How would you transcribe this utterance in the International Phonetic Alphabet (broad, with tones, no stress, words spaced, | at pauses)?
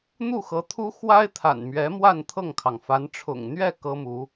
n̪u˥˩xɤ˧˥t̪ʰu˥ xwa˥ɪ̯t̪ʰa̰˨˩nmɥɛ˧˥ mwa˥˧n t̪ʰɤ˥˩ŋkʰɑ˩ŋfa˧˥n ʈ͡ʂʰʊ̰˨˩ŋn̪ɥɛ˥˩ kɤ˥mu˧˥